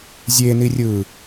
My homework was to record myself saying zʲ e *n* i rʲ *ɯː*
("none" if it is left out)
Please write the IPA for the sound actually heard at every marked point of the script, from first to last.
n, ɯː

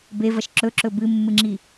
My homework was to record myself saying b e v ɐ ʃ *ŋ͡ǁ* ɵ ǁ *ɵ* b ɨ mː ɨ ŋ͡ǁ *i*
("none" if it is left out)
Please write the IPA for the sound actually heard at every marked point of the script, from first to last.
ǁ, ɵ, i

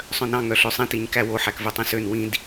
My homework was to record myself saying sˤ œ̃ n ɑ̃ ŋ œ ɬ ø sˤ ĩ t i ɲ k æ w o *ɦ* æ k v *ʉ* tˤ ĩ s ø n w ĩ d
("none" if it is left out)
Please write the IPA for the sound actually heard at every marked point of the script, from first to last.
ħ, ʉ

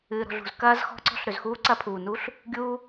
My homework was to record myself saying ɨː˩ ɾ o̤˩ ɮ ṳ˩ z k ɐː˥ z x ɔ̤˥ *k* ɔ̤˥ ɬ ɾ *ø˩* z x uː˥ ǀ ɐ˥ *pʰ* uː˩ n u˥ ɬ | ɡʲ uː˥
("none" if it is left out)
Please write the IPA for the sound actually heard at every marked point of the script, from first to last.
ǀ, ø˩, pʰ

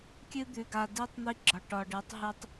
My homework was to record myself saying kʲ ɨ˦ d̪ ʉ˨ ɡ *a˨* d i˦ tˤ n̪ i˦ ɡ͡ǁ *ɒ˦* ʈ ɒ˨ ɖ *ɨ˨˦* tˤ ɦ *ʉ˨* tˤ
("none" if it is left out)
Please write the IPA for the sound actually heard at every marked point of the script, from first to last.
a˨, ɒ˨, ɨ˨˦, ʉ˦

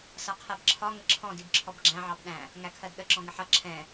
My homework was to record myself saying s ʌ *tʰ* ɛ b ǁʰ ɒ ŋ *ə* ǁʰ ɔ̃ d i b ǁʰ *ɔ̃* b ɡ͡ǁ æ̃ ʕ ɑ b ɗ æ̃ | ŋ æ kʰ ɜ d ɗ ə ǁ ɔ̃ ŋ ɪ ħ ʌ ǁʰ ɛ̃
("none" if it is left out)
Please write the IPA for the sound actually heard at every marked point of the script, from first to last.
qʰ, ə, ɔ

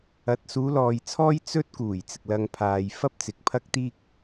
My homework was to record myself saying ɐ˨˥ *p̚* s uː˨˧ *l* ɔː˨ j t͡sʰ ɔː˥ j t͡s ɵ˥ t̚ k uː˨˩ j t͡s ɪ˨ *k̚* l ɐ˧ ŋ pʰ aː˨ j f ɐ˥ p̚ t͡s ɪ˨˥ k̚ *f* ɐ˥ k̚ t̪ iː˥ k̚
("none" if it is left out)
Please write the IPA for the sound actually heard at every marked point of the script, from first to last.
t̚, l, k̚, pʰ

